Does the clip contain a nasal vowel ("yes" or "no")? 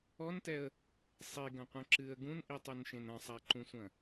yes